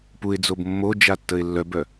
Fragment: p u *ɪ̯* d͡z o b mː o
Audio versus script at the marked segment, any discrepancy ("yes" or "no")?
no